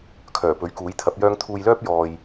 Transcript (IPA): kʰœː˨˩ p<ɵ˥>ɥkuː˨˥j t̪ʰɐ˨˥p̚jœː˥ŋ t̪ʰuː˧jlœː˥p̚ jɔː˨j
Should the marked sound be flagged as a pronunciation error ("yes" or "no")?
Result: yes